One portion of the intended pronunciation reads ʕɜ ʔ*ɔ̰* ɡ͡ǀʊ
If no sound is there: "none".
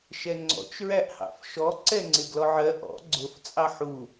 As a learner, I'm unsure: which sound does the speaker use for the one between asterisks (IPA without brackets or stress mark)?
ɔ̰